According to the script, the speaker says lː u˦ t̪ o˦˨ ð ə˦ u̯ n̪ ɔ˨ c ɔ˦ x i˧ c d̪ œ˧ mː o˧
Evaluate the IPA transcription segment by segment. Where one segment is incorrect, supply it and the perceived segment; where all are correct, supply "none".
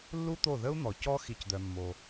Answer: none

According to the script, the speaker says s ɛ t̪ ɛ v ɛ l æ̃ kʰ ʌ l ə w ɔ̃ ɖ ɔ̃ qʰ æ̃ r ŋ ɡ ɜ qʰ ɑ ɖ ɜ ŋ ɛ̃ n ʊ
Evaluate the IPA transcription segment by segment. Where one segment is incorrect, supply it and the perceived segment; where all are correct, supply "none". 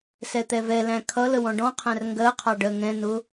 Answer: none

